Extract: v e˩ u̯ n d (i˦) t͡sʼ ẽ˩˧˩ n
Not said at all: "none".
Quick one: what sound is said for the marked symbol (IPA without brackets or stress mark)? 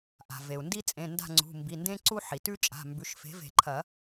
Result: i˦